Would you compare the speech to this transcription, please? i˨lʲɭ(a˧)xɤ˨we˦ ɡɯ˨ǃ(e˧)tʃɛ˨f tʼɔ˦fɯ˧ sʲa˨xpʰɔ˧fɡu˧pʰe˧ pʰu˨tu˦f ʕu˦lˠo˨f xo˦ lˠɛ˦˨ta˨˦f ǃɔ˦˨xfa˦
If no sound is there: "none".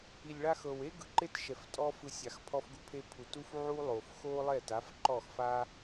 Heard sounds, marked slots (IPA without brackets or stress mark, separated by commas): a˧, e˦